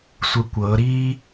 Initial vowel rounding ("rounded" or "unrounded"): unrounded